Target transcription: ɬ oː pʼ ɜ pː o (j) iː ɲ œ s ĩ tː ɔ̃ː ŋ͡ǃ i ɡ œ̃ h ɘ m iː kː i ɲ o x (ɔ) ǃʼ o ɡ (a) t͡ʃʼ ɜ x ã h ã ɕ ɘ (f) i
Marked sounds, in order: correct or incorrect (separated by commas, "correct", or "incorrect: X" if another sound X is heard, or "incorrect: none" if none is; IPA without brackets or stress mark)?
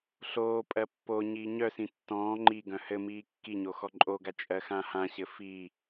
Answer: incorrect: ɲ, correct, correct, correct